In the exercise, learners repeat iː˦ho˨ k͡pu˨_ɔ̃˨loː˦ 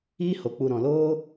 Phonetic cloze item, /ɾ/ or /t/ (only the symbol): ɾ